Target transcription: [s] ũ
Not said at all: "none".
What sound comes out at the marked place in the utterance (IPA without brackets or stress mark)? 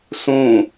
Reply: s